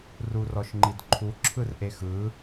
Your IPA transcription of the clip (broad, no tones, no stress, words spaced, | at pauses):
rurɔʃŋ͡ǃidǃʰu ǁʰɯrʔexɯ